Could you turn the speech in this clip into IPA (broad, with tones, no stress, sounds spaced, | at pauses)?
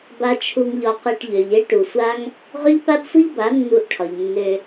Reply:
b a˧ t͡ʃʰ u˧ ŋ ʎ ɒ˧ q e˧ ʈ ʎ ø˨ ʎ e˦ ʈ u˨ sʷ a˦ ŋ | ʁ ø˦ ʎ p a˦ b sʷ i˦ ʎ b a˨˦ nː u˧ ʔ ʈʰ ɒ˨ ʎ nː ø˧